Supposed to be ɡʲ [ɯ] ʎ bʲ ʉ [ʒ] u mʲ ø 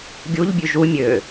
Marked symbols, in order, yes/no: no, yes

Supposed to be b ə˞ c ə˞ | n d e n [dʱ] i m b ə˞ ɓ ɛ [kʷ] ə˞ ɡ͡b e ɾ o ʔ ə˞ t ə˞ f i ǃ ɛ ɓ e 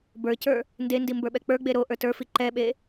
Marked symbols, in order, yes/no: no, no

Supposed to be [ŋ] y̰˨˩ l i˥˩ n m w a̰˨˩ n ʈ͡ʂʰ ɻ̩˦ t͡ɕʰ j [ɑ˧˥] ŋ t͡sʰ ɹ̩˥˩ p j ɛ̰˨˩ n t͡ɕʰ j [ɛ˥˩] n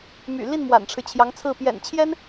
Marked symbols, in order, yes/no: no, yes, no

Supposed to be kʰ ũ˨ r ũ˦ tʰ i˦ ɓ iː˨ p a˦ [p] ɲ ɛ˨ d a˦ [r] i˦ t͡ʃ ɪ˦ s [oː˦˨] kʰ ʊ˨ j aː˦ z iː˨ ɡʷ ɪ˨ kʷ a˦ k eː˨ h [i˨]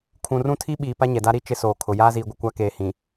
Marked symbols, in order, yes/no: no, no, no, no

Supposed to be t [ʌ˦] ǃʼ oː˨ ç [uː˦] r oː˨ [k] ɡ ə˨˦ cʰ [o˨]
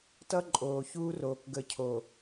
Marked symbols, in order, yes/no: yes, yes, yes, yes

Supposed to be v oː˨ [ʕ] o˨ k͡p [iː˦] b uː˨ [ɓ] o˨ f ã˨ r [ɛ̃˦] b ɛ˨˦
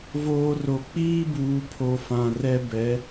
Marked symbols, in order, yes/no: no, yes, no, no

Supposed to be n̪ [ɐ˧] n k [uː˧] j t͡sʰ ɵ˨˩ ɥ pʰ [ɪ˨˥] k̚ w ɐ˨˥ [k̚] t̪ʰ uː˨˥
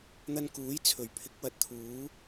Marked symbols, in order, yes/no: yes, no, yes, no

